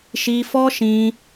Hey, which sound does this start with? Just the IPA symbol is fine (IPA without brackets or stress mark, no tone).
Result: ʃ